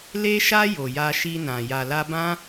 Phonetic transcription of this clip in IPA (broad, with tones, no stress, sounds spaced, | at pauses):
l e˧ ʃ a˧ j o˨ j a˧ ʃ i˧ n ã˨ j a˨ l a˧ b ã˦